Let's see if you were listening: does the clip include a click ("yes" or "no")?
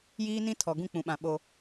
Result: no